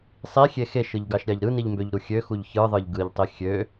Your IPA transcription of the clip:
sˤ i xʲ e x e ʃ ɯ ʎ ɡ ɑ ʃ ɾʲ ɑ ʎ ɾ ɯ n i ʎ m b ø ʎ ɾ u xʲ ø x u ʎ ç ɯ ðˤ ɯ ʎ ɡ ɯ ʎ tˤ i xʲ ø

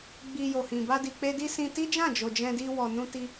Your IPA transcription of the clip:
ɡ͡b i˧ j o˨ h ĩ˨ b a˧ d i˨ k͡p e˧ d i˦ s ĩ˧ t i˦ d͡ʒ ã˦˨ d͡ʒ o˨ d͡ʒ ɛ̃˧ d i˧ w ɔ˨ n ũ˧ t i˧

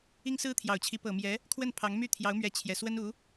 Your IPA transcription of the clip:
i˥ ŋ s ɹ̩˥ t̪ʰ j ɑ˨˩ ʊ̯ t͡ɕʰ i˧˥ p ɤ˨˩ m j ɛ˧˥ | kʰ w ə˥˩ n pʰ ɑ˧˥ ŋ m y˥˩ t̪ʰ j ɑ˧˥ ʊ̯ m ɥ ɛ˧˥ t͡ɕʰ j ɛ˨˩ s w ə˥ n u˧˥

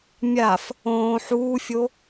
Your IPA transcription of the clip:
mʲ a f | õː ħ uː fʲ o

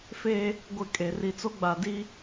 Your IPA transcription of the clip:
f e˦ | ɡʷ ɪ˦˨ kʼ e˨ r i˨ t͡s o˦ ɡ͡b a˨ d i˦

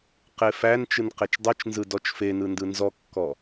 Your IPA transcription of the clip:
q e f æ n t͡ʃ ɯ n q e t͡ʃ dˤ ɯ t͡ʃ n z ɯ d ɔ t͡ʃ f e n ɯ n d ɯ n z ɔ kː ɔ

